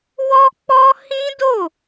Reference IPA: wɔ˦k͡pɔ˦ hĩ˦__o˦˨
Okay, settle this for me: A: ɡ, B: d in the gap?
B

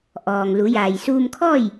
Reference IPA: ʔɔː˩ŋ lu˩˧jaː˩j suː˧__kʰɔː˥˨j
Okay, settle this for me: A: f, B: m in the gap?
B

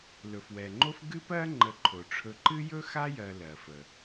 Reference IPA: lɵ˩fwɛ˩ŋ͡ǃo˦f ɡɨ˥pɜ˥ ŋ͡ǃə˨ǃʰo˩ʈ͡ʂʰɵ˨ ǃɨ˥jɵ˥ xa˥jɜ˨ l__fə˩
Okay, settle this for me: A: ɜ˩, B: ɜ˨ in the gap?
A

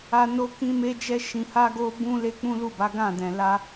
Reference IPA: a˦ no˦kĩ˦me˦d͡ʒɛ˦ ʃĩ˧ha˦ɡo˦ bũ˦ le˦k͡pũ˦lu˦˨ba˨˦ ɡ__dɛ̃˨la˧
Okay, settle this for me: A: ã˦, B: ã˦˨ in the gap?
B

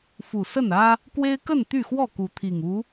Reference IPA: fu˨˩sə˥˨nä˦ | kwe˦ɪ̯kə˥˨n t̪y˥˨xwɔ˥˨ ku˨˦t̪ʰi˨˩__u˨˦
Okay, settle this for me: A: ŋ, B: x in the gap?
A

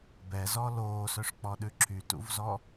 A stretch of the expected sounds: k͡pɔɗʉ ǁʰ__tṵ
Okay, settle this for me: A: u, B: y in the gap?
B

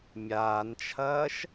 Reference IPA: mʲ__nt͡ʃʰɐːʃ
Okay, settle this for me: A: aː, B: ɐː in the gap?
A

